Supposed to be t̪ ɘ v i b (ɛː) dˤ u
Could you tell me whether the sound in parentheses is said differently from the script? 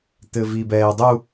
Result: no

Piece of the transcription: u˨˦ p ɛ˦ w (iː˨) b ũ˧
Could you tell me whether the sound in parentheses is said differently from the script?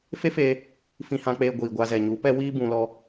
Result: yes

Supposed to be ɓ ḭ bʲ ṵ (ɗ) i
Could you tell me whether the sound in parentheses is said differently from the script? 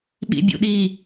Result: no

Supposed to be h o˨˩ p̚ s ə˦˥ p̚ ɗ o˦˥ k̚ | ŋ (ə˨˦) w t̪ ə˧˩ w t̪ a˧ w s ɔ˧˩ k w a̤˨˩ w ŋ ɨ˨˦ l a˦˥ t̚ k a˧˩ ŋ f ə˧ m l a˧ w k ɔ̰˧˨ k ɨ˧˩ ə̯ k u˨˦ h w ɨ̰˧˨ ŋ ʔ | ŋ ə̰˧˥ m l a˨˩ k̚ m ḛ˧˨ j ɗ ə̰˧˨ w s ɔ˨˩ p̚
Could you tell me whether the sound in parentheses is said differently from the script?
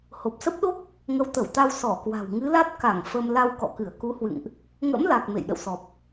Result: no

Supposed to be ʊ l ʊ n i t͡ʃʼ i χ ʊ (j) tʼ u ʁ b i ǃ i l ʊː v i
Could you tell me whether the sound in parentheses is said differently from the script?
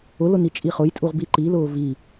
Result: no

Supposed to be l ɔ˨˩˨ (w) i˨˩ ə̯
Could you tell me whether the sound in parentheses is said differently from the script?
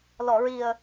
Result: yes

